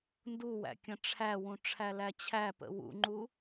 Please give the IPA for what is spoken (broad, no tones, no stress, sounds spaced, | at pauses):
n d u w æ̰ kʲ ə̃ ʈ͡ʂʰ æ w ũ ʈ͡ʂʰ æ l æ t͡ɕʰ æ p ə̰ w ṵ ŋ͡ǃ u